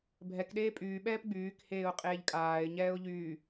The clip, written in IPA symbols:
bʱ ɛ k ɗ eː pʼ yː ɓ ɛː p ɡ͡b yː k h eː ʊ̯ qʼ eː ʎ kʼ aː ɪ̯ ɲ ɛː ʊ̯ ʎ yː

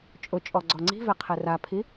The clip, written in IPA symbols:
t͡ʃʼ ʊ t͡ʃʼ ɔ ɡ͡ǀ ɔ ŋ͡ǀ i̤ v ɛ qʰ ɛ r a pʰ i

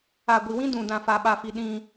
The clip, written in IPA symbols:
a˨ ɡʷ i˨ w ĩ˦ d ũ˨ d ã˨ f a˨ ɓ a˨ f i˨ ɗ ĩ˦

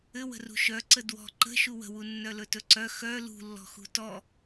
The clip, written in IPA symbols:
ɘ w ə̤ r ṳ ʃ œ ǀ ə d w ɔ̤ ǃ ə̤ ʃ u w ə̤ w u nː œ l ɵ t ɵ ǀ œ x œ l ṳ lː ɔ̤ x ṳ t ɔ

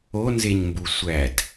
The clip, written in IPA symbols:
o n z e ɲ m b u sʷ æ d

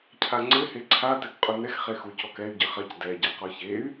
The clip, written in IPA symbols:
cʰ a ŋ͡ǀ ɘ h e ǀʰ a t ɛ k qʼ u n ɛ x χ e x u c ɔ k ɛ y̯ ɟ ɘ χ ɐ c d ɛ ɟ a q ɔ ç e y̯

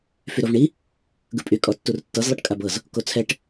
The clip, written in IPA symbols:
f y ɾ o v ɳ i | ɡ ɯ pʼ y kʼ ɔ tː u r tː ɤ z lˠ ɯ ʈ kʼ a b ɤ z | k o t͡sʰ ɛ ʈ

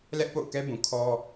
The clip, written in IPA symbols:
l ɛ˦ ʔ p o̰˦˨ ʊ̯ k ɛ˦ b ũ˨ kʰ ɔ˦

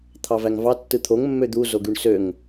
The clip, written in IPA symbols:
t̪ʰ ɑ v æ ŋ v ɑ tː ɯ t̪ʰ o ŋ mː ø d̪ u z o ɡ y ɳ s ø ŋ

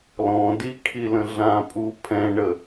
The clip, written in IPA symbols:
l ɔ̃ d i kʰ i l ə̃ ɮ ã pʼ u pʰ ɛ̃ ɳ ə

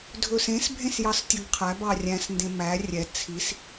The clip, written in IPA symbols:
dʱ ɵ s ẽ s bʱ ẽ s j ɑ s tʲ ɵ ɡ qʰ æ b ɑ rʲ æ̃ s n d ẽ m æ rʲ ɛ t͡sʰ i s

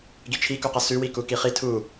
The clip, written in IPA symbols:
ɡ i t͡ʃʰ i k u q ʌ s ʉ w i k u k i χ i tʰ u

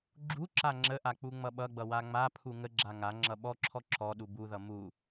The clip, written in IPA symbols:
ɡ͡ǁ u ǁ a ŋ͡ǁ ə ʔ a k͡p u ŋ͡m ʌ ɓ ʌ ɡ͡b ʌ w a ŋ͡m a pʰ u ŋ ə ɡ͡ǁ a ŋ a ŋ͡ǁ ʌ ɓ ɔ ǁʰ ɔ ǁ ɔ ɗ u b u ð ʌ m u

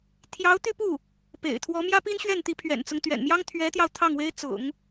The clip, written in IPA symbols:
t̪ʰ j ɑ˧˥ ʊ̯ t̪ y˥˧ p u˥˩ | p ḛ˨˩ ɪ̯ t̪ʰ w ɔ˧˥ m j ä˥ p i˥ n ɕ ɥ ɛ˥˩ n t̪ i˧˥ pʰ ɥ ɛ̰˨˩ n t͡s ʊ˦ ŋ t̪ ɥ ɛ̰˨˩ n m j ɑ˥ ŋ t̪ʰ ɥ ɛ˧˥ t̪ j ɑ˧ ʊ̯ t̪ʰ ɑ˥˩ ŋ w e˥ ɪ̯ t͡s ʊ̰˨˩˦ ŋ

